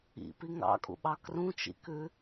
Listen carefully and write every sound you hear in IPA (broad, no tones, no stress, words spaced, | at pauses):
ḭpi ŋɑ̰kʼṵɓɑ krũt͡ʃḭkʉ